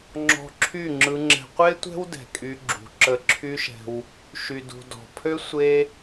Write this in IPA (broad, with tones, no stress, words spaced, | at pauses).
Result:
ŋ͡ǁɔ̤˧ǁʰy˦˨ŋ͡ǁɯ˧ŋ͡ǁɛ̤˧ qʷe˦tʷɛ̤˦w dɛ̤˨kʼy˧ɡ͡ǁṳ˨ ǁə˧ǁʰy˦ʃɛ̤˧w | ʃy˨dṳ˨ dɔ̤˨pʰø˦ sʷe˦